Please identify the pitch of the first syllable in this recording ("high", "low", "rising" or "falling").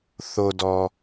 low